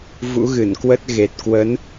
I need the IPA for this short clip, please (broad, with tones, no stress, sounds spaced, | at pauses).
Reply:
v ṵ˧˥ ɣ ɨ˧˩ n k w ə˦˥ t̚ ɣ e˨˩ t̚ k w ə˨˦ n